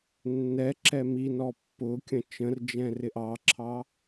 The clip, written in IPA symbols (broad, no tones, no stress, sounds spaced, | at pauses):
nː ɛ ǁ ɛ m i n ɔ pː ʊ kʲ ə̃ t͡ʃ ə̃ r d͡ʒ ɛ̃ r ɪ ʔ ɑ ǁʰ ɑ